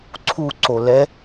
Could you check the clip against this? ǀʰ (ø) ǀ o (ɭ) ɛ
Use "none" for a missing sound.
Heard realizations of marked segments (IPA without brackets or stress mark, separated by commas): u, l